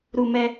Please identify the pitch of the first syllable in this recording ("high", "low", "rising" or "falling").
low